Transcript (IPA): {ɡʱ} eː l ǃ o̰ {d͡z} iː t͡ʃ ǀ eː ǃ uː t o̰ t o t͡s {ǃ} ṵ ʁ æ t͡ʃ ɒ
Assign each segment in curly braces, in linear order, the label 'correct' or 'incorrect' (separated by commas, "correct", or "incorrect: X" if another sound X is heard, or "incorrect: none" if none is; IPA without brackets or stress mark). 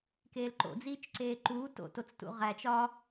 incorrect: k, correct, incorrect: t